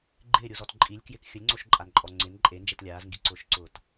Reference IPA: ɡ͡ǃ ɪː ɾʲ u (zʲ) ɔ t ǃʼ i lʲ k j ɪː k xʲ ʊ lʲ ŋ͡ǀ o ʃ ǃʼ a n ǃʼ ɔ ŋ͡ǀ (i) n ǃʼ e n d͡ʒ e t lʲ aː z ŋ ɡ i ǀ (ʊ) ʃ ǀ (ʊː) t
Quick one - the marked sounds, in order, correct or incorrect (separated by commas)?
incorrect, incorrect, incorrect, correct